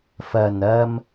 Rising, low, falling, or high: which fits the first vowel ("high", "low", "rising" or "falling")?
low